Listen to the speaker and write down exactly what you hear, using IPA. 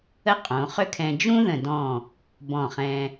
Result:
ə˥ qʼ õ˩˧ χ ʏ˥ kʰ ɛ̃˧ d͡ʒ ũ˥ ð ə̃˧˩ d ɔ̃˧˩ | b ɔ̃˧˩ χ ɛ̃˧

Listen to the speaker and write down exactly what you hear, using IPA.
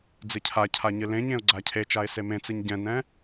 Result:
d͡z ɨ cʰ a cʰ a ɲ ɨ l ẽ ɲ ẽ ʊ̯ ɡ͡ǀ a cʰ e t͡ʃ a ɪ̯ s e m ẽ t͡s ɨ ɲ ɟ ɛ̃ n ɛ̃

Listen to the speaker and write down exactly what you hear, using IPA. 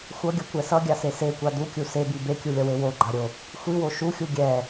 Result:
xʷ ʌ ɡʲ ʌ kʷ ɛ s ʌ ɡʲ a s e s e kʷ a d u kʲ u s e b i b e kʲ u lʲ ʌ w e w o ɡ͡ǃ a ɾʲ o | xʷ i w o ʃ u xʲ u ɡʲ ɛ

